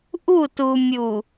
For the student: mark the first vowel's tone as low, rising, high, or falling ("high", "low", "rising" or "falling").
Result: falling